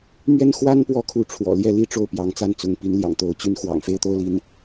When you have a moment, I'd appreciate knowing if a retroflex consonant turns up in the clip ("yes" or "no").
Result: yes